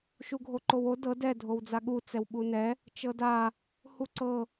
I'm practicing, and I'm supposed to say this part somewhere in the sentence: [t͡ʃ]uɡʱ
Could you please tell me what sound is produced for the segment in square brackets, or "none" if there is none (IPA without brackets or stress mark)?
ʃ